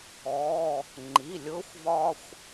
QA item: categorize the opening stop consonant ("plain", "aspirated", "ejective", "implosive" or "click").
click